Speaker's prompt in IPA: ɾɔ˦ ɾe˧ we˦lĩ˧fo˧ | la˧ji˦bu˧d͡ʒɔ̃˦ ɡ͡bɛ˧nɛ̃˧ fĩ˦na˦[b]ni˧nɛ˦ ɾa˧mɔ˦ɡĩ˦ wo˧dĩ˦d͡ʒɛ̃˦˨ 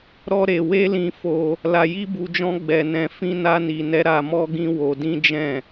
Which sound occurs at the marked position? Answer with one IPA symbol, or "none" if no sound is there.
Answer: none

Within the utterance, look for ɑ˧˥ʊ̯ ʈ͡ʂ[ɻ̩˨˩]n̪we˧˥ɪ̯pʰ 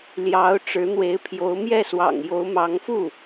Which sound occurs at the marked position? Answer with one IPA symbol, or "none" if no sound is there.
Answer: ɻ̩˧˥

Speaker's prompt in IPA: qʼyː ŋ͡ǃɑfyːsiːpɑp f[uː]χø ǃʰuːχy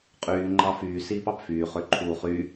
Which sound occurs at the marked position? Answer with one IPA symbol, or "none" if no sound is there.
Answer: yː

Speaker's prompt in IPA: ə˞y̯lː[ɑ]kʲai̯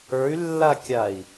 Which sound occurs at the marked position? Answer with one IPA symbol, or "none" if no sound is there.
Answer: a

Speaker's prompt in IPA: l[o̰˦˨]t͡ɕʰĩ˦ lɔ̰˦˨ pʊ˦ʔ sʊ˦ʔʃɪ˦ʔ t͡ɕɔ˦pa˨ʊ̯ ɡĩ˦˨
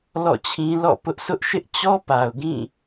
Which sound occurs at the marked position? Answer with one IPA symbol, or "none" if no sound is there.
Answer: ɔ̰˦˨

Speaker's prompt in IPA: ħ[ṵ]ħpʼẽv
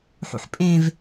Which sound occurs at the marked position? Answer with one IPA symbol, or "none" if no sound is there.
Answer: ṵ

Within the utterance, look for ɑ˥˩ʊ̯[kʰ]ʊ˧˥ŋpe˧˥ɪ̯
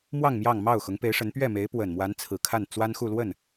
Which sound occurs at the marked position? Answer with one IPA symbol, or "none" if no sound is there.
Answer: x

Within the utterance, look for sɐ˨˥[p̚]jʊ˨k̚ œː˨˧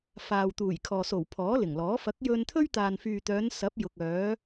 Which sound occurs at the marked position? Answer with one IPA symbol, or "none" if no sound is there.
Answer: p̚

